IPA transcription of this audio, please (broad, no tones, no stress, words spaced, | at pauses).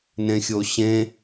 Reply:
nẽxʲoɕẽ